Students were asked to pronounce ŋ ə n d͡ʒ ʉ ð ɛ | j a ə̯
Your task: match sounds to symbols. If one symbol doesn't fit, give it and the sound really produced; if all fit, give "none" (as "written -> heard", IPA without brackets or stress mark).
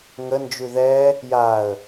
none